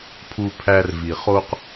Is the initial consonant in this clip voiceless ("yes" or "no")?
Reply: yes